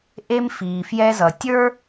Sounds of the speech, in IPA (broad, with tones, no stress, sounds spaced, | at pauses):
ʔ e˧ m f iː˩ f j ɛ˧ z ʌ˩ tʲ ə˞˥